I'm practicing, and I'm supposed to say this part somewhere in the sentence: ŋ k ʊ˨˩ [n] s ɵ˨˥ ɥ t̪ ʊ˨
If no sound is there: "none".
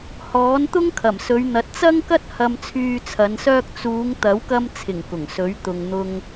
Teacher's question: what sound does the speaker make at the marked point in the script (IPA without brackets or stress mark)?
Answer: ŋ